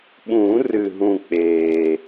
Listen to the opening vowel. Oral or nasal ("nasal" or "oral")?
nasal